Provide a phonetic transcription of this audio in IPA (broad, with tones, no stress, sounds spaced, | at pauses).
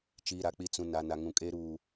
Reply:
t͡ʃ i˨ ɾ a˨ k͡p i˨ t͡s ũ˨ n a˨ n a˨ ŋ ũ˨ kʼ e˦ ɾ uː˨